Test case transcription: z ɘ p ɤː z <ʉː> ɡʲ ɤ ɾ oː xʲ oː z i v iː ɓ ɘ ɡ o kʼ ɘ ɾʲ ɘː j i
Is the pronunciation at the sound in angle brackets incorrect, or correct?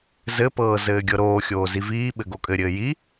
incorrect